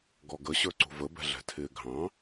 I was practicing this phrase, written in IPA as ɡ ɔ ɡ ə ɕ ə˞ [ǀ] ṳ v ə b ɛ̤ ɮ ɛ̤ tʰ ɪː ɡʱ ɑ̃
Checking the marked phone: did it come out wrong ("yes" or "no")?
no